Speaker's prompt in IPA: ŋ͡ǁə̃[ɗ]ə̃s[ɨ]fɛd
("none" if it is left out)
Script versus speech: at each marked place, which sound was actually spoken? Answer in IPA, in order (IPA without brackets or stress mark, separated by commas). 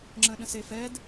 ɗ, e